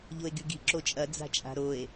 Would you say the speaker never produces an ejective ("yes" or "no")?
no